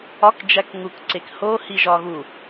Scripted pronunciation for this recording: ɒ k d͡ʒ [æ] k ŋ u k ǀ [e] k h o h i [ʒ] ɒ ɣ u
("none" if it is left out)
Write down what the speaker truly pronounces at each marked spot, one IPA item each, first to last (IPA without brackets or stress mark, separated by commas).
æ, e, ʒ